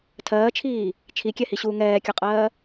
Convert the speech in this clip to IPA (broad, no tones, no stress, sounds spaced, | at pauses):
tʰ ɜː t͡ʃʰ iː | t͡ʃʰ i kʲ ɛ h i ɕ uː ŋ ɛː kʲ ʌ qʼ ɜː